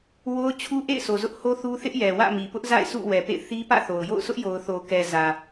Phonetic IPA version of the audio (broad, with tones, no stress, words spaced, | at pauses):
wo˦ʊ̯ t͡ɕʰu˦ʔḛ˦˨ɪ̯so˨ zʊ˦ʔho˦θu˦ θɪ˦ʔjɛ˨ wä̰˦˨mi˨pʊ˦ʔza̰˦˨ɪ̯ sṵ˦˨ wɛ˨pḛ˦˨ɪ̯ θi˦pä̰˦˨θo˨ʊ̯ jo̰˦˨ʊ̯sʰʊ˦ʔjo˨ʊ̯ θo˨kɛ˨zä˨